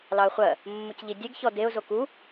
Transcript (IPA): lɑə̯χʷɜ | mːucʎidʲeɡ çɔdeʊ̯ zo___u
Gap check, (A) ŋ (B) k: B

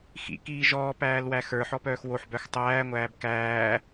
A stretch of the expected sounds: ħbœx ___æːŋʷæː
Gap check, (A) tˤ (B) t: A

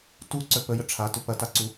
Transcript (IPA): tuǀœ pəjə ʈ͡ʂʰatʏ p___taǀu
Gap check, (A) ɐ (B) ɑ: A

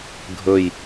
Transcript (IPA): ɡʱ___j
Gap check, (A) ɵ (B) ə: A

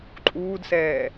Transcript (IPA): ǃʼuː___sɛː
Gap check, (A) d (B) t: A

